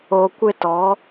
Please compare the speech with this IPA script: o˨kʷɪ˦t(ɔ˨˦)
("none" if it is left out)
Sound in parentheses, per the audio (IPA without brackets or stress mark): ɔ˨˦